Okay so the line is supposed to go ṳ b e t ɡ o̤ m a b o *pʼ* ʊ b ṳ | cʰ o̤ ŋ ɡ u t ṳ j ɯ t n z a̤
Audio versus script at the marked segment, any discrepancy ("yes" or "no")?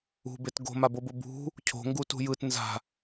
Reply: yes